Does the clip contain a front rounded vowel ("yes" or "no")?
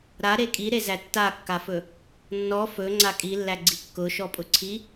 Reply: no